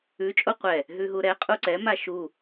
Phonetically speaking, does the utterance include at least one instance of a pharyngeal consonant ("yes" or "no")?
no